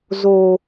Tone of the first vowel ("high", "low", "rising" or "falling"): low